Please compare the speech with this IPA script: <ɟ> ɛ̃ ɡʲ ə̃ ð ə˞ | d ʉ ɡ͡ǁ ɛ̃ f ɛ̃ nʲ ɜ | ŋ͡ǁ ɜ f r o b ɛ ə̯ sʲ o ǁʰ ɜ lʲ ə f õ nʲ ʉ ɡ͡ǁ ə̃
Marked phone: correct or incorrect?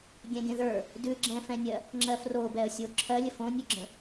incorrect